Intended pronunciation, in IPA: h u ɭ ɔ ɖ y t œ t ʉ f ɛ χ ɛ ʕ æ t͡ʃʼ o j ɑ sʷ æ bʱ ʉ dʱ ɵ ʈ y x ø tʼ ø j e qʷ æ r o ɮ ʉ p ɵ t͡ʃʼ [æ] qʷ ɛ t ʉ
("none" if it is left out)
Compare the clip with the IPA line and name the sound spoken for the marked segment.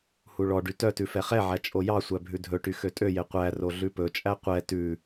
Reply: æ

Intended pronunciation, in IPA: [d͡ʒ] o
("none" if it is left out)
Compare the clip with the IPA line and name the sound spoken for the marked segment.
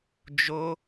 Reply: d͡ʒ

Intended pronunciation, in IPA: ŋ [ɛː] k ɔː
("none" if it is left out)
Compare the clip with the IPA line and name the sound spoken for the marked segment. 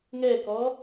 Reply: ɛː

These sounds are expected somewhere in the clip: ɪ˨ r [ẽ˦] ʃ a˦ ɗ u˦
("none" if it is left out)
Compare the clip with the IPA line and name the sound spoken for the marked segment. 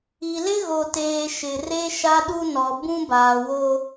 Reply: e˦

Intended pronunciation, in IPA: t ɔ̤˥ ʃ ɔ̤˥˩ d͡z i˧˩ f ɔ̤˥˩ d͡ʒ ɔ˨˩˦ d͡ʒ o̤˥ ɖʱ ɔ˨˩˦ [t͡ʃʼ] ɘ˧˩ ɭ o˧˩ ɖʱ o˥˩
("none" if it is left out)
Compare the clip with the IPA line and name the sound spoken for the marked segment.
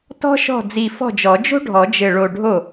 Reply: d͡ʒ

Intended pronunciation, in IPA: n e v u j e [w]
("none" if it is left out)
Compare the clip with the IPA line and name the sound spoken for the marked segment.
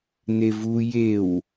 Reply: w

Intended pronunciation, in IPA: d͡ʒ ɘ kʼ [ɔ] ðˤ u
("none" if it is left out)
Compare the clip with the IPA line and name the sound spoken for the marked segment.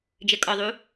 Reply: ɔ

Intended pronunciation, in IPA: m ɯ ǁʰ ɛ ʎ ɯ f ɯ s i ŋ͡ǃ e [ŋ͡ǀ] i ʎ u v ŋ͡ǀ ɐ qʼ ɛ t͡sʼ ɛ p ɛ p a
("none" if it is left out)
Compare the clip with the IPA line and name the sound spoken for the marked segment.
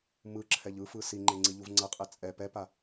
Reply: ŋ͡ǀ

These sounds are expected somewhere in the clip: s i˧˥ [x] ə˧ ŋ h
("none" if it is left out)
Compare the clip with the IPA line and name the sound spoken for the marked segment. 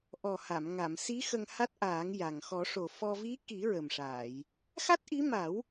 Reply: x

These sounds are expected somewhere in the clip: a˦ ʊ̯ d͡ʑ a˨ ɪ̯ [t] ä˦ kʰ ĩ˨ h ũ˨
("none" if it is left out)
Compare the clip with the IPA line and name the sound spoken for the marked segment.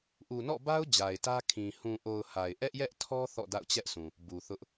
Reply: t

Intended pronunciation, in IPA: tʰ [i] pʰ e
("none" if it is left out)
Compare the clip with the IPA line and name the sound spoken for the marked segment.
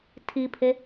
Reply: i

